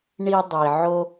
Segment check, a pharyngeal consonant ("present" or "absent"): present